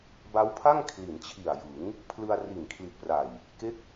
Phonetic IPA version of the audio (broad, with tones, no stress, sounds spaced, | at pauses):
b a˦˥ w pʰ a˥˩ ŋ kʰ l i˩˦ n t͡ɕʰ i˨˩ a̯ j ɯ˩˦ ŋ | pʰ l ɯ˧ a̯ r i˨˩ n kʰ l i˨˩ t̚ p r a˨˩ j | k e˦˥ k̚